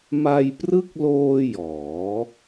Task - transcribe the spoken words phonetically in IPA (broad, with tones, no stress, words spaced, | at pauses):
ma˧jprɯ˦˥k̚loː˧ jɔː˩˦